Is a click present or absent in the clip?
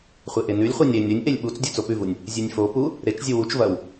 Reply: absent